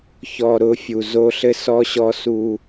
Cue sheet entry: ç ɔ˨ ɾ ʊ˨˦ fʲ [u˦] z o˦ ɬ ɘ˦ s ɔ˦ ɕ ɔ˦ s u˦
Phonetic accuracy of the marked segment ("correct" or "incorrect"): incorrect